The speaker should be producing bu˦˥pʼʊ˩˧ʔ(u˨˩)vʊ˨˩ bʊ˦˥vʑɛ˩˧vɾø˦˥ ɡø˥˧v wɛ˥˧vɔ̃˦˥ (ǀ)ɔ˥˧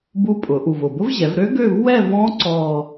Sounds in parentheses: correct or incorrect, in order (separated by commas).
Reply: correct, correct